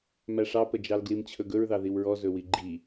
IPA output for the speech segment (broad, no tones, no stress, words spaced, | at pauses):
mæʂɑpəd͡ʒɑl ɡlimt͡ɕʰɵɡɵɹðɑ ðiwɹɔ zɵwiɡ͡ǃi